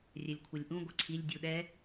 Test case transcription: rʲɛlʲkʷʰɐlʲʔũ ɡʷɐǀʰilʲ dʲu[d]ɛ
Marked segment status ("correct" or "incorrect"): incorrect